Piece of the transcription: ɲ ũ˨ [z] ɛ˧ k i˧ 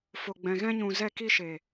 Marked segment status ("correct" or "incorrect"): correct